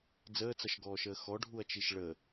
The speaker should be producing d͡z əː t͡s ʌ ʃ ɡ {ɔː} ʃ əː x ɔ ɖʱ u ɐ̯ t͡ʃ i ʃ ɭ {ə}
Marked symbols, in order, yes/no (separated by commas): yes, yes